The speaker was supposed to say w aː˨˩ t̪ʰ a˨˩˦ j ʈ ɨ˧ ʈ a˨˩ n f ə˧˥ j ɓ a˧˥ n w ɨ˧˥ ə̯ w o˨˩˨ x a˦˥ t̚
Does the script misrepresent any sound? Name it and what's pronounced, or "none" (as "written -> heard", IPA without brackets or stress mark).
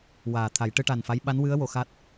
ə˧˥ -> a˧˥